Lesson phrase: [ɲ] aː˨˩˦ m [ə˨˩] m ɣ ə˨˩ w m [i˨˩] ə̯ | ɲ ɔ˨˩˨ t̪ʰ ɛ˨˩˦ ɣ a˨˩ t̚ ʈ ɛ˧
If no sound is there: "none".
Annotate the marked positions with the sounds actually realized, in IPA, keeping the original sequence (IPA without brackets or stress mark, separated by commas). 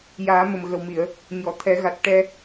j, ə˨˩, i˨˩˨